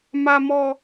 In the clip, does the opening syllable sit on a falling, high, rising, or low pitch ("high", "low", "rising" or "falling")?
high